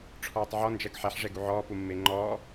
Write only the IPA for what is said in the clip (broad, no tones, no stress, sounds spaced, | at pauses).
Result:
ʈ͡ʂʰ ɔː tˤ ʕ ɔ n d͡ʒ ɜ ɡ ħ ɛ ħ ʐ ɛ ɡ u ʕ ɔː p u mː e ŋ͡ǃ ɔː